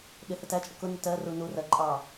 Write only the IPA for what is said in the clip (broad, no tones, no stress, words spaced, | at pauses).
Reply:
ɗɪ hətæt͡ʃʼə kʊ nɪtɜru nurɜ ǃʼɑ